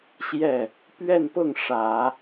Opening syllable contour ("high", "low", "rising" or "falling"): falling